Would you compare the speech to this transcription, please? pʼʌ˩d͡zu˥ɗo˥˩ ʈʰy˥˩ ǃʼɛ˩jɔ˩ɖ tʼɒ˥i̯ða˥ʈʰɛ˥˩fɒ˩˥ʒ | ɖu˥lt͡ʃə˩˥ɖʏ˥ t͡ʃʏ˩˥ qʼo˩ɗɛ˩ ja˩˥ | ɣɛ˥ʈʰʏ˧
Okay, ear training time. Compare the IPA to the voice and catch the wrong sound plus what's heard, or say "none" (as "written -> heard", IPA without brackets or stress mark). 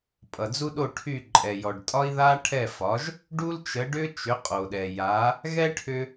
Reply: none